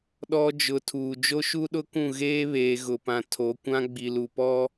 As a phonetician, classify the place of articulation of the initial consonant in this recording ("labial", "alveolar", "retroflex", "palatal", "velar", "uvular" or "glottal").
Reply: alveolar